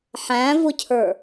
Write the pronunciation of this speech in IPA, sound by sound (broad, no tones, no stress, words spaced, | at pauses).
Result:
ħæ̃vʊcʰə˞